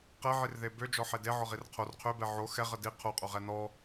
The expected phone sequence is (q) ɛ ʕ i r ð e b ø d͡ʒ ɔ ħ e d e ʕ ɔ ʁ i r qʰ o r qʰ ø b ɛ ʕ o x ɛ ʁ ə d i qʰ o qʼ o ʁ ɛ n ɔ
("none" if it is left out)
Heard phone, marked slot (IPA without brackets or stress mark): q